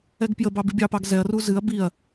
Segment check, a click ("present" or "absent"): absent